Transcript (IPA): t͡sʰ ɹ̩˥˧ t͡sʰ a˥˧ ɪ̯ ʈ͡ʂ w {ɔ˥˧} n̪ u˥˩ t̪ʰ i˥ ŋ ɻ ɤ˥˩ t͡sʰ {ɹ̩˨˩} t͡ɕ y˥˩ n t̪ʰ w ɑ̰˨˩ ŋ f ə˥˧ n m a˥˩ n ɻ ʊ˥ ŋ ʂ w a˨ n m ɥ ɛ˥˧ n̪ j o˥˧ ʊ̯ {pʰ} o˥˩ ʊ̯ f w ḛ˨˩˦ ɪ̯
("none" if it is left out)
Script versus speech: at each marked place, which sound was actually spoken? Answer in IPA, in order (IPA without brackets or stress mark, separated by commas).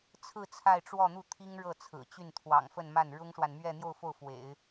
ɔ˥˧, ɹ̩˨˩, f